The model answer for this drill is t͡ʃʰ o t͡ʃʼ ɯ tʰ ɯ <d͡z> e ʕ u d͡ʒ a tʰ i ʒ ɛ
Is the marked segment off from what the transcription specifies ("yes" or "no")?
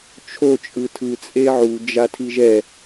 yes